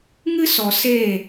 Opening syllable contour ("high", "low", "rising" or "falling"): high